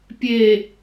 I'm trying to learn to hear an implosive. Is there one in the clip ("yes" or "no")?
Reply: no